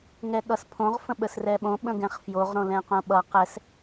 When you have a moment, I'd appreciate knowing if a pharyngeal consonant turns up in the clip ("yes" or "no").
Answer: no